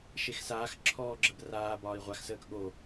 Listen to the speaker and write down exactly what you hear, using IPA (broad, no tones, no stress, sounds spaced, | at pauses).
ʃ e x s aː x ǁʰ ɔː ɡ͡ǁ ə b r aː b ɒː i̯ ʁʷ a x s əː k ɠ o